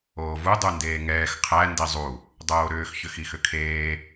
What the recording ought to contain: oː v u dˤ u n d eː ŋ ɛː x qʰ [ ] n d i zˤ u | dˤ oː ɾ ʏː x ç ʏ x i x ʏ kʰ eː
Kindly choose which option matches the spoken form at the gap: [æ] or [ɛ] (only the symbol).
æ